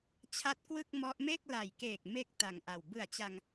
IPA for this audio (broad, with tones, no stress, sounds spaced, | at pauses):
t͡ɕʰ a˦˥ t̚ k w ɯ˥˩ k̚ m ɔ˦˥ ʔ m e˥˩ k̚ l a˨˩ j k eː˨˩ k̚ m e˦˥ k̚ t a˨˩ ŋ ʔ a˨˩ w b ɯ˨˩ a̯ t͡ɕ a˧ ŋ